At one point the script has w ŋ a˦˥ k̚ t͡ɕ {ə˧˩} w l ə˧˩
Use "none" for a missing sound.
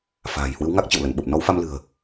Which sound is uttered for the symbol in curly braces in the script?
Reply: ə̰˧˨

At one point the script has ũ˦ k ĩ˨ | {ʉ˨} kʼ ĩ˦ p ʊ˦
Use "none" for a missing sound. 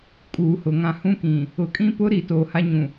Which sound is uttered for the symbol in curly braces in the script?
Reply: ʊ˨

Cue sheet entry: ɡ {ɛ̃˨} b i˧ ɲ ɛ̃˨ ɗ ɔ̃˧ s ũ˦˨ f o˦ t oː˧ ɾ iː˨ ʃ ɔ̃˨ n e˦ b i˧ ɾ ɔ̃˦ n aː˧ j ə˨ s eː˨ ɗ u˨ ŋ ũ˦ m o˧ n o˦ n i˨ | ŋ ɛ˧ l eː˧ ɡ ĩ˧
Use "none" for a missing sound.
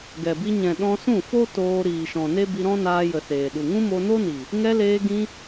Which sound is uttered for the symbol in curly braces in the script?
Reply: ɛ˨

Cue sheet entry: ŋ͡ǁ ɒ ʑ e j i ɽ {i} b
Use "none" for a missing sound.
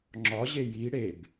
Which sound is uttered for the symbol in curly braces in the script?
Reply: e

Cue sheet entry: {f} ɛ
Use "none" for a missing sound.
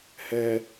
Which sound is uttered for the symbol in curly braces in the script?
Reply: h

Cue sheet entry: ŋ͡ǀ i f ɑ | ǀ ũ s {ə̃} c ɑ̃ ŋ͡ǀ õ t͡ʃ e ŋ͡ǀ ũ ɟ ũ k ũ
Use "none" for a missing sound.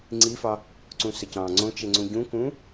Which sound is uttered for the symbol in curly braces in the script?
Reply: ə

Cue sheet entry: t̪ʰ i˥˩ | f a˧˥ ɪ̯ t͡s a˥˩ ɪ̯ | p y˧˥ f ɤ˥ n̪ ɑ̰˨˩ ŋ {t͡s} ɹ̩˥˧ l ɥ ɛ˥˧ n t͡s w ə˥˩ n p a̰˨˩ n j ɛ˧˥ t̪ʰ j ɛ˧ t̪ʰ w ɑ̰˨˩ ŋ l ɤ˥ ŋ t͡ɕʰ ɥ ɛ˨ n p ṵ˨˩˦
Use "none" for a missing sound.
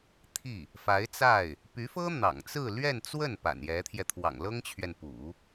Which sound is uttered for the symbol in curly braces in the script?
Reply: t͡s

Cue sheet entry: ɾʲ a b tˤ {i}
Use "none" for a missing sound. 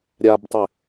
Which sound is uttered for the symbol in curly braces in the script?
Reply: ɪ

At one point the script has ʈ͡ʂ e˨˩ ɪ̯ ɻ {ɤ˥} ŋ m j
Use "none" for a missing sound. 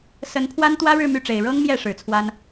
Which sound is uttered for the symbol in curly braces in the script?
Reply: ɤ˥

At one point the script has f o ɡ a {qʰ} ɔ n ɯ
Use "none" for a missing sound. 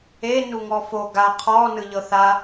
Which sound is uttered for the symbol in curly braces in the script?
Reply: qʰ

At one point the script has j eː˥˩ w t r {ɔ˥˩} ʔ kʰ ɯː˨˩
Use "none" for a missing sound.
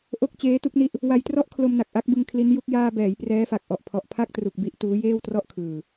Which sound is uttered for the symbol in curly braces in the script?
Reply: ɔ˥˩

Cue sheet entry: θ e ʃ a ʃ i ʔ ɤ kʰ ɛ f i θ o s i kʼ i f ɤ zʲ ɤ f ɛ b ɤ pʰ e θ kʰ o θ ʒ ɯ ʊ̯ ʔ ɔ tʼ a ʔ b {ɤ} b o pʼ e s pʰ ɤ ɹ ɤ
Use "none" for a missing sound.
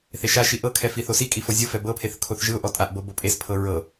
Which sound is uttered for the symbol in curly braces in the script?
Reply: ɤ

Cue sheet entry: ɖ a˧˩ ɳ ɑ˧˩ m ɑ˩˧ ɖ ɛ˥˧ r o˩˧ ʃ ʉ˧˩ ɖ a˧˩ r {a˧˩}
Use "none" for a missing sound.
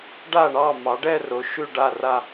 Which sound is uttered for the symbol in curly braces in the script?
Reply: a˧˩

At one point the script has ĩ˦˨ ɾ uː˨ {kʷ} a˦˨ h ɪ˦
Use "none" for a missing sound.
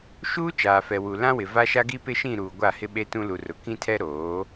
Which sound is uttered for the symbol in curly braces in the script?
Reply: ɡʷ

